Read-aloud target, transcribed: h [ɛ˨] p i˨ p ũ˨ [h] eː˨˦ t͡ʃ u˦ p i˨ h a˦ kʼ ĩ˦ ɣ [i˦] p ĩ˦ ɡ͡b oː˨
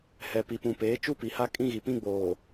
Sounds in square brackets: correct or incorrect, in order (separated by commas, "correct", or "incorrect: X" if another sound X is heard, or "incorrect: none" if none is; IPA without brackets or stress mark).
correct, incorrect: p, incorrect: i˨